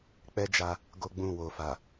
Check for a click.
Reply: absent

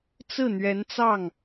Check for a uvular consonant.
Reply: absent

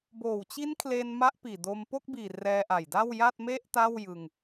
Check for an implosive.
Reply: absent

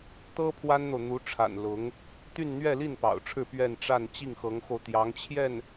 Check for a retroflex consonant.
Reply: present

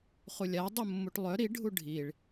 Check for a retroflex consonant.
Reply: present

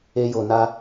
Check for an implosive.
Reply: absent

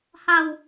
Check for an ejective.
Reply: absent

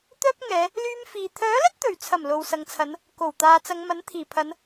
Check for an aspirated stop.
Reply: present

